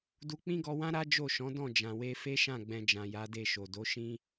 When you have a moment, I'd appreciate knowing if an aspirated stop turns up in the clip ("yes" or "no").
no